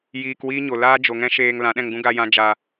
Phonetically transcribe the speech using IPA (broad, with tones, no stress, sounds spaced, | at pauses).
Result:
j iː˧ k w iː˦ ɲ o˨ l aː˦ d͡ʒ o˨ ŋ ɛ̃˦ ʃ eː˧ ŋ l ã˨˦ ɗ ɛ̃˧ ŋ ɡ ũ˦ ɡ a˧ j ã˧ d͡ʒ a˧